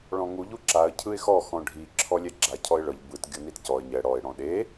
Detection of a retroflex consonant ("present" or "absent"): present